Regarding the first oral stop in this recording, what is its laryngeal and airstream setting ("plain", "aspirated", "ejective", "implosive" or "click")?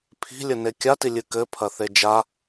aspirated